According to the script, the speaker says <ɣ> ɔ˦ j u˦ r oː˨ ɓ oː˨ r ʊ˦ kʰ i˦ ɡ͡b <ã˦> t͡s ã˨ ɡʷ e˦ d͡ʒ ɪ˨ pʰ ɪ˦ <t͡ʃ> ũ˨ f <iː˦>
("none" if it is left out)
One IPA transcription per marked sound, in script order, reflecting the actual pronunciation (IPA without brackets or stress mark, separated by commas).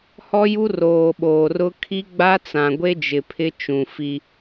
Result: h, a˦, t͡ʃ, i˦